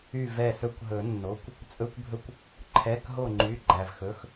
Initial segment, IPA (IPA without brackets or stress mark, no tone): y